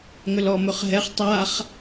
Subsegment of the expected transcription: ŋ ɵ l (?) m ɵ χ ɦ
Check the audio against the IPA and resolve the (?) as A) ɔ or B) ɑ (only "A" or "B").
A